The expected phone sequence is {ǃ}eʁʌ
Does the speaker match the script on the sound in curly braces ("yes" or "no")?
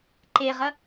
yes